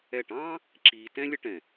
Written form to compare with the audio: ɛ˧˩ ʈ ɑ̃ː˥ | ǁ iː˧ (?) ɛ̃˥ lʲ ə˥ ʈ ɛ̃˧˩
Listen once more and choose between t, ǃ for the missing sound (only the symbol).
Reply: t